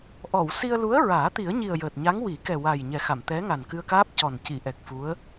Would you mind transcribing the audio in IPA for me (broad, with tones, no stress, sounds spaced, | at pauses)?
ʔ ɔ˨˩˨ w s i˧ ə̯ l u˧˥ ə̯ ɹ aː˨˩˦ t̪ i˨˩˦ ə̯ ɲ i˨˩ ə̯ j əː˨˩ t̚ ɲ a˧˥ ŋ w i˨˩˦ k ɛ˨˩ w a˨˩ j ɲ ɛ˨˩ x a˨˩˨ m t̪ ɛ˧˥ ŋ a˨˩ n k ɨ˧ ə̯ k aː˦˥ p̚ c ɔ˨˩ n c i˨˩˨ ʔ ɛ˨˩ k̚ f u˧˥ ə̯